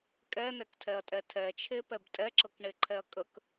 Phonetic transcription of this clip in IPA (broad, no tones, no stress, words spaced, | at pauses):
kʼɛnɛktʰɛɐ̯tʼɛ tʰɛt͡ʃʰepɛb tʼɛǁɤkɳeǃʰɛɐ̯ kʼək